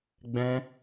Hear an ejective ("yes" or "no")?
no